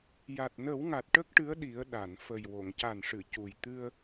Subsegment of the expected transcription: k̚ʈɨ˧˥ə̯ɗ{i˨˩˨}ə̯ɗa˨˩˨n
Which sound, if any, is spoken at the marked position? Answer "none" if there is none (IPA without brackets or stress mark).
i˨˩˦